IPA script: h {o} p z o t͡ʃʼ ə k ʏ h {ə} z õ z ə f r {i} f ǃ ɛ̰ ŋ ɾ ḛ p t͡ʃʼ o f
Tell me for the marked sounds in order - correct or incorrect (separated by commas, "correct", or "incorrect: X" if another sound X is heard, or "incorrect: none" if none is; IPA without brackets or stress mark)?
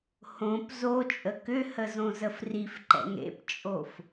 incorrect: õ, correct, correct